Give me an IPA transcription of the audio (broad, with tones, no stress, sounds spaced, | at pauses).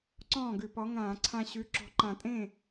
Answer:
ǀ ɔ̃ː˥˩ ɡ ʉ˧˩˧ p ɔ˨˥ ŋ ãː˧˩˧ ǀʰ ã˧ ɕ ʉ˨˥ ǁ ɔ̤˧ ǃ ã˧˩ tʼ ẽ˥˩